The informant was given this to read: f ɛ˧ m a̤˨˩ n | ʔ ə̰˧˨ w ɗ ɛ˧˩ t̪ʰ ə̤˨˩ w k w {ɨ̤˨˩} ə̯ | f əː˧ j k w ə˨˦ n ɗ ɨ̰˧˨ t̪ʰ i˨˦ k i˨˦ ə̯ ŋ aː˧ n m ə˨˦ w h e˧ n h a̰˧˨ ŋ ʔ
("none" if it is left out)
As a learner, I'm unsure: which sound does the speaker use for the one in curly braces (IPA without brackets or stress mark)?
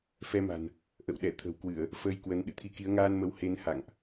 ɨ˧˩˨